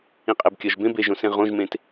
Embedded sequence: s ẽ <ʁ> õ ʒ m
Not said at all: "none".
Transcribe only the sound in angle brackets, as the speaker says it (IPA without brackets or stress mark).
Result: ʁ